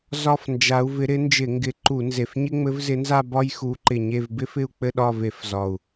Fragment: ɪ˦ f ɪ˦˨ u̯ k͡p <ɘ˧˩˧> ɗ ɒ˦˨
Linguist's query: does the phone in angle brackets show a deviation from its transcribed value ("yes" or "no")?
yes